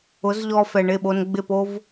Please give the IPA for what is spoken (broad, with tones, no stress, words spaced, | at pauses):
ʊ˨˦zʎɔ˧fɛ˨ ɳɪ˦˨ɓo˧nɡ͡bɪ˦˨po˦v